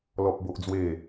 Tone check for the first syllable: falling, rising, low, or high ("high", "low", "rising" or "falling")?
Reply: high